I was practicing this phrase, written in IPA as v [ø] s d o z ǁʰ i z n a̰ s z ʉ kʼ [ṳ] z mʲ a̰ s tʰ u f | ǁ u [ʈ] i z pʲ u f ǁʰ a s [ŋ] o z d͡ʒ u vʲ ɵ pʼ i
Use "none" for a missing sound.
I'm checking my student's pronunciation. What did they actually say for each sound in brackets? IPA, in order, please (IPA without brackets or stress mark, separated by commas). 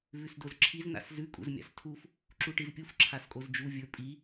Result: ʉ, ṵ, ʈ, kʼ